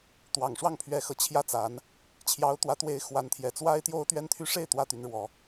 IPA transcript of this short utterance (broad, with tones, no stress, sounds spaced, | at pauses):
t̪ w ɑ˨˩ ŋ ʂ w ɑ˥˩ ŋ pʰ ɥ ɛ˧˥ x ɤ˨˩ t͡ɕʰ j ä˥˩ t͡s a˧˥ n | t͡ɕʰ j ɑ˧˥ ʊ̯ t̪ w ä˧˥ t̪ w e˧˥ ɪ̯ x w a˧˥ n t̪ʰ j ɛ˨˩ t͡s w a˥ ɪ̯ t̪ j o˥ ʊ̯ t̪ ɥ ɛ˥ n t̪ʰ y˥ ʂ e˥˩ ɪ̯ t̪ w ä˥ t̪ y˧˥ n ɻ w ɔ˧˥